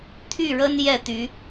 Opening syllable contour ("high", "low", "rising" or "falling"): falling